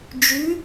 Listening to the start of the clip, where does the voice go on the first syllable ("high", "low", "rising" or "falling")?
rising